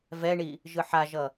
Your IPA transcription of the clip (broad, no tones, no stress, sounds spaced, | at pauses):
v ɛ ɳ i | ʒ ɯ ħ a ʒ ʌ